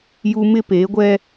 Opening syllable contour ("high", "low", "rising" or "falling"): high